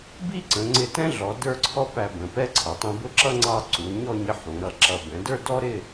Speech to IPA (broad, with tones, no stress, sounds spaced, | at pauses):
b i˥˧ ǀ ə̃˩˧ ŋ͡ǀ ɪ˧ t ɛ̃˥ ɮ ɔ˩˧ d ə˞˥˧ ǀʰ ɔ˥ p æ˧ b ə̃˩˧ p ɛ˥ ǀʰ ʌ˩˧ tˤ ɛ̃˧ b ʊ˥ ǁ ʌ˥ ŋ͡ǀ ɑ˧ ǀ u˩˧ ɲ ɔ˥˧ ɲ ɪ˧ ħ ũ˩˧ ɾ ʌ˧ ǁ ʌ˧ b ɛ̃˩˧ d ə˞˥˧ d ɔ˥ ɾ ɪ˥˧